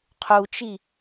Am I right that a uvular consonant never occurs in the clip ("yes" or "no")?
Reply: no